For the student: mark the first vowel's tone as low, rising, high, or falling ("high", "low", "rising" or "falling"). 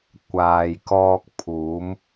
low